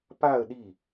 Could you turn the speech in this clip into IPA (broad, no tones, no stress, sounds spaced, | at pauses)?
p a ə̯ ɗ i